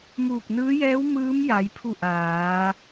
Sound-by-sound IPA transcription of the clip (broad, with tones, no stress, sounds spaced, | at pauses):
m uː˧˩ k̚ n ɯː˧˥ j ɛː˧˥ w m ɯː˧˥ m j a˩˧ j pʰ u˧˩ ʔ aː˩˧